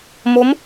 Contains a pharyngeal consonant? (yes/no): no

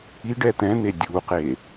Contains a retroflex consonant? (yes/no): yes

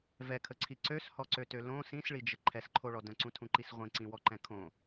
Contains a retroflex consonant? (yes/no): yes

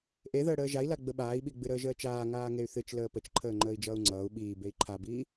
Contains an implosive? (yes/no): yes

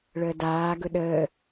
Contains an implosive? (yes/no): yes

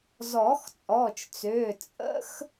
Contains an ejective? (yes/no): yes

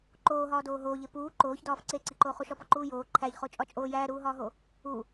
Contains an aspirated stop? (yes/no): yes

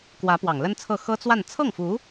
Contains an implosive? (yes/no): no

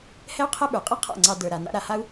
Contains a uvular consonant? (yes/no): yes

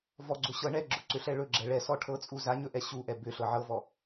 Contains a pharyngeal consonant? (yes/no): yes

